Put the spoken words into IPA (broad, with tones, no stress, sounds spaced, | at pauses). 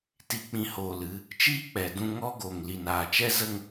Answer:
t i˨ k͡p ĩ˨ h oː˨ l ɨ˧ | t͡ʃ iː˦ k͡p ɛ˨ d ũ˧ ŋ ɔ˦ ɡ o˨ ŋ l i˨ n aː˨ t͡ʃ ɛ˦ z ə˦ ŋ